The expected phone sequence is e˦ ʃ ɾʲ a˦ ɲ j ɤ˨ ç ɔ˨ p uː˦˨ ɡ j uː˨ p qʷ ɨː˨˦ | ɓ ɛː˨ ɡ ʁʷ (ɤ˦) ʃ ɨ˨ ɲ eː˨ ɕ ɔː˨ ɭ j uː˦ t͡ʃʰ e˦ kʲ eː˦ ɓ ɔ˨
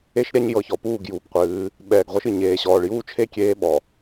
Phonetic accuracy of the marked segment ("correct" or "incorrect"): correct